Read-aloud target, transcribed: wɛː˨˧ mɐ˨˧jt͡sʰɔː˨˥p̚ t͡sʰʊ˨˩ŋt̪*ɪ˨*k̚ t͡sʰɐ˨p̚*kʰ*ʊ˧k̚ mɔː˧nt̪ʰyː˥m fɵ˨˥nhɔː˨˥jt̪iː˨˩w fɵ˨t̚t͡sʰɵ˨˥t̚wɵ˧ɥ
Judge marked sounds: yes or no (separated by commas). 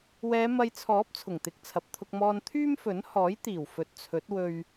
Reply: yes, no